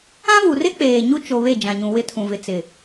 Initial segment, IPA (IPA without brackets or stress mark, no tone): ã